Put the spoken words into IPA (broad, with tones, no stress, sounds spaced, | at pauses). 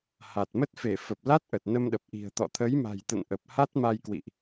h a˨˩ t̚ m ə˦˥ t̚ f e˧˩ f ə˨˩ p̚ l a˦˥ t̚ ʔ ə˨˩ t̚ n ə˧ m ɗ ə˨˩ p̚ ʔ i̤˨˩ ə̯ t̪ ɔ̰˧˨ t̪ʰ ə˨˦ j m a̤˨˩ j t̪ ə̰˧˨ n ʔ ə˨˩ p̚ h a˦˥ t̚ m a˧ j k w ḭ˧˨ ʔ